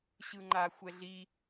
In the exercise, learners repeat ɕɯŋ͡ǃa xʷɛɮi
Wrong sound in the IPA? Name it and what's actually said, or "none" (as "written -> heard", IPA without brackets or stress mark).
none